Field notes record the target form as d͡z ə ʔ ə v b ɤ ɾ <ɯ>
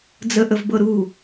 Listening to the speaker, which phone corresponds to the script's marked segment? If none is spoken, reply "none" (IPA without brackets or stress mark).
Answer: u